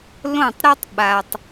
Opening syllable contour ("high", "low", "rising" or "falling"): falling